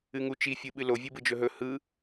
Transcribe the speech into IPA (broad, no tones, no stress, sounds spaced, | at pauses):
ɨ ŋ u t͡ʃ i fʲ ɨ ɓ ɨ l o vʲ ɨ b ɯ d͡ʒ ɵ ɦ ɵ h ɯ